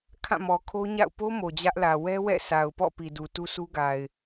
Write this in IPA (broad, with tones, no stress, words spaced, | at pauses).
kʰã˦˨mɔ˨kʰo˦ɲa̰˦˨ʊ̯ po˦ mo˨d͡ʑä˦ʔlä˨ wɛ˦wɛ̰˦˨sa˨ʊ̯pɔ̰˦˨ pi˨du˨ tu˦su˦ɡa˨ɪ̯